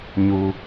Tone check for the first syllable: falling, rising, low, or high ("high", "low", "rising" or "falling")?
low